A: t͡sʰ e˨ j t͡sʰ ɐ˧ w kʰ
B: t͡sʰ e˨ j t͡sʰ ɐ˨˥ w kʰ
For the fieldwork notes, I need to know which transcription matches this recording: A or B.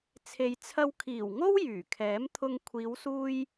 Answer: A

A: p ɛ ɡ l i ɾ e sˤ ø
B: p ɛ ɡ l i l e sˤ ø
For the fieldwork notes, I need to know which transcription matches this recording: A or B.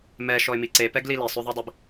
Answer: B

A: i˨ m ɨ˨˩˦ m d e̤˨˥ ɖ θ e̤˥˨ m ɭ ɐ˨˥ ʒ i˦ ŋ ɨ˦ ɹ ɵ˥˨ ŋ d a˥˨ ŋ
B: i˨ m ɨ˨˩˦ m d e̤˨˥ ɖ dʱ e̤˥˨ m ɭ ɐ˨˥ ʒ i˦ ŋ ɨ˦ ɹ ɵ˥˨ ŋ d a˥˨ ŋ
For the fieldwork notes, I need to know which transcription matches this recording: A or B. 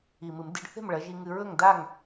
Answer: A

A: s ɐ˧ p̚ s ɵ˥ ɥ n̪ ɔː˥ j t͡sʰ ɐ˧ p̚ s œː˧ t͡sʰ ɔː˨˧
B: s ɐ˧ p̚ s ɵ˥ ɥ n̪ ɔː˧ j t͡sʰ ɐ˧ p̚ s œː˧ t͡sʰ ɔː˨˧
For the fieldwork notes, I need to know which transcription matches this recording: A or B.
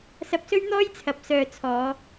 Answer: A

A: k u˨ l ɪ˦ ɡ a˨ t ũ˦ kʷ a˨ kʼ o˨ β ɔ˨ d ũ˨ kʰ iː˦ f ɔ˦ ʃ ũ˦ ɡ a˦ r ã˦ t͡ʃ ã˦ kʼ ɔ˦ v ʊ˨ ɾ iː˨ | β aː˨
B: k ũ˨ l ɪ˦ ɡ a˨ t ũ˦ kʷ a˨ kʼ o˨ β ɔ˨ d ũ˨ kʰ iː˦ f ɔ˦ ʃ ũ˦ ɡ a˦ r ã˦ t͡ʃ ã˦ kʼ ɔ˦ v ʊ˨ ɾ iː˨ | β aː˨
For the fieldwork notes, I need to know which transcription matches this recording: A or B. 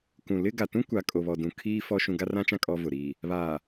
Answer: B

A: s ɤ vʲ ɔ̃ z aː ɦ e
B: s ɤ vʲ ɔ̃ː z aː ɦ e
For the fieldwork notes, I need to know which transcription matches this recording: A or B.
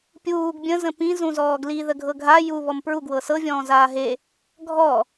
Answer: B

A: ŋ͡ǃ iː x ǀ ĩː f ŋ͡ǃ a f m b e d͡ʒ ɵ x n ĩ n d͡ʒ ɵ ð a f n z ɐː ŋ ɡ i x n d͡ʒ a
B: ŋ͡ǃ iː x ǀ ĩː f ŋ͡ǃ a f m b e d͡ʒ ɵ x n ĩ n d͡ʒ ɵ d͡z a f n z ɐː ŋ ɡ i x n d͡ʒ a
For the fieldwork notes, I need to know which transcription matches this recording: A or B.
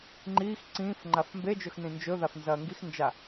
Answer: A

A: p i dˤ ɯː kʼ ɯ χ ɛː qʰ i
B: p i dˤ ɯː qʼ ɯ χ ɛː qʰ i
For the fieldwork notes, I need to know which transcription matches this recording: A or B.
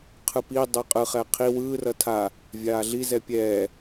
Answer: B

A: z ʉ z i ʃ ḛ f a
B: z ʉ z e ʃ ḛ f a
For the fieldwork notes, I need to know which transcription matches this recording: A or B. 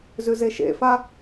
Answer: B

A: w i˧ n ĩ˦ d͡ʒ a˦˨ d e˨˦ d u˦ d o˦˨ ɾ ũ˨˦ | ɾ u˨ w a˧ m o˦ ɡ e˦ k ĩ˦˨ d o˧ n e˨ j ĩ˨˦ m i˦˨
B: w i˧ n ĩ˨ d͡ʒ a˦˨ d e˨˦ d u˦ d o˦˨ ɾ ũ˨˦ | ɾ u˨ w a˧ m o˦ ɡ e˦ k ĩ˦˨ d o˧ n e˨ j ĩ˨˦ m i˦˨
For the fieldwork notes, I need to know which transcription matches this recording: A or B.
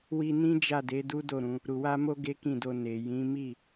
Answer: A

